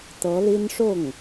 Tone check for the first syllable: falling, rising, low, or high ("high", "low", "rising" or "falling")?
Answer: rising